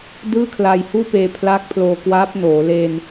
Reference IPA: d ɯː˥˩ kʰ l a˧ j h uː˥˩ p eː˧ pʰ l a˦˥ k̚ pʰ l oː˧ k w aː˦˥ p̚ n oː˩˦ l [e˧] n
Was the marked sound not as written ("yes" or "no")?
no